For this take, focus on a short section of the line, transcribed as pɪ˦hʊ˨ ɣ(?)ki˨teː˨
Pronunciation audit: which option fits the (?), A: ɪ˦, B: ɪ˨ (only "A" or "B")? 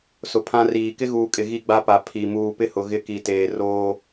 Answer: A